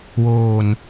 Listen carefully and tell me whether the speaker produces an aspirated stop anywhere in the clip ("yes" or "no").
no